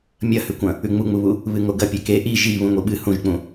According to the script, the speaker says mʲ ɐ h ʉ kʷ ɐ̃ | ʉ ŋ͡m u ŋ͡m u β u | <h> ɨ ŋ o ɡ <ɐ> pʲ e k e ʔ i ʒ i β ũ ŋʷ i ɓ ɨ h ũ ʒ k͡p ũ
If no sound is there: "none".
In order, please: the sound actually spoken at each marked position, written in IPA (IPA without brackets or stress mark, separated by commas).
β, ɐ